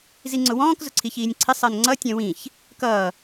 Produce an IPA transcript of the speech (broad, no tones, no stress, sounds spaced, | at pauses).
z i ŋ͡ǀ ʊ w ɔ̃ː k z ʊ ǀʰ i ç iː nʲ ǀʰ ɪ sˤ ɜ n ŋ͡ǀ ʌ tʲ ɛ̃ w ĩ ç | k ʌː